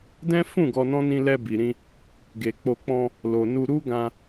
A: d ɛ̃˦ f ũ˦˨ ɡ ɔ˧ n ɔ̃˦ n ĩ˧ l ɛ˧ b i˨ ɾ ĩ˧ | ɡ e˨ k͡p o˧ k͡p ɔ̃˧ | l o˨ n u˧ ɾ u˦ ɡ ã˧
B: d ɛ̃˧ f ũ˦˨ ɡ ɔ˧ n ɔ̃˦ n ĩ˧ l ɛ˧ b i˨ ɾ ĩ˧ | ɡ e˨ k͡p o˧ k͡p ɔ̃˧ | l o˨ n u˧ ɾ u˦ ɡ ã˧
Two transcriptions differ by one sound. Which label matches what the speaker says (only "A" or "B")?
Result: A